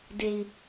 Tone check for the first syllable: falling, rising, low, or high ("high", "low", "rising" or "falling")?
low